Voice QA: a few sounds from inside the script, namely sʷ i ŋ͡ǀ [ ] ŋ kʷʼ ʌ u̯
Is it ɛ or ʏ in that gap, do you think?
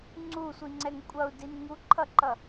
ɛ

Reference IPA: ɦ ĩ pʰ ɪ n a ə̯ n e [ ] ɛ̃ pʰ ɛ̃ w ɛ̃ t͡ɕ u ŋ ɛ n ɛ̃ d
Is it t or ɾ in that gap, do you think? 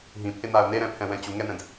ɾ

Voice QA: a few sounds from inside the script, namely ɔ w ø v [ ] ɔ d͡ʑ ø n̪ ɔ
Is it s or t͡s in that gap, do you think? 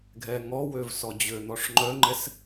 s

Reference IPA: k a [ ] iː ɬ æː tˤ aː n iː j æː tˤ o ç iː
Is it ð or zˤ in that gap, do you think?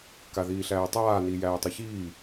ð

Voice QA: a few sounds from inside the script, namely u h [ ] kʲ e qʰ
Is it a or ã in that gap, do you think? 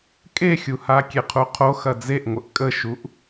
a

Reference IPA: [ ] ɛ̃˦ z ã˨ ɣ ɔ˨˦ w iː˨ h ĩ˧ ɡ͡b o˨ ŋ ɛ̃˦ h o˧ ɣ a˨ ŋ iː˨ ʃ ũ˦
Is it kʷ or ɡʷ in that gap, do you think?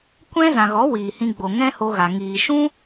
kʷ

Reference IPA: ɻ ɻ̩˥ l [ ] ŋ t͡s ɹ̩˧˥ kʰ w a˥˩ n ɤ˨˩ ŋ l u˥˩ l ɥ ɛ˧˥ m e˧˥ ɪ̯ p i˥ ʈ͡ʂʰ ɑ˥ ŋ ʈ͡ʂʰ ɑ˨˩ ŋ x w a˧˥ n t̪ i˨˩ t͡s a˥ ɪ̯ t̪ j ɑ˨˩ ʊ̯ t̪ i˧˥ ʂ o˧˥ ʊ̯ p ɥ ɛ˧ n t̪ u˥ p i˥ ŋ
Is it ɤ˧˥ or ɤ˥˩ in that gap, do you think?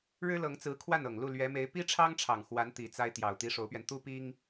ɤ˧˥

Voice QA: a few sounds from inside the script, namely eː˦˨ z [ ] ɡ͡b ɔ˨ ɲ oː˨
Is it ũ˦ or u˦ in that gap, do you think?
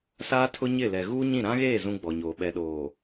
ũ˦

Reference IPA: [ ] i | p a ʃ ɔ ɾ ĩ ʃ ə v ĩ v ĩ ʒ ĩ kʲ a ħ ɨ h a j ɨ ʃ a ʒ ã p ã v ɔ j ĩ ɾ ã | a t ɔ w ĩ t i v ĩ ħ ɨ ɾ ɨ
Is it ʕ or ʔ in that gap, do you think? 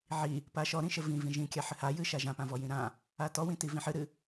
ʕ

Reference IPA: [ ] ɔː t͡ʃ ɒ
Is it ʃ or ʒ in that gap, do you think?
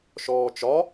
ʃ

